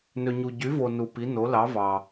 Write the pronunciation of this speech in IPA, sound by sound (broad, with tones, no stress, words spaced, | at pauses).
nø˧ɲu˧ ɟy˧˥vo˧ nu˧pi˧˥ no˧˥lɑ˧˥ vɑ˧